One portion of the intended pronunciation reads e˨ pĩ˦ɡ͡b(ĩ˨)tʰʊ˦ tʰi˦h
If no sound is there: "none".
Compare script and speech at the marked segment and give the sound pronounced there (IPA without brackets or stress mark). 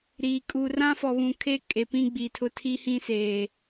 i˨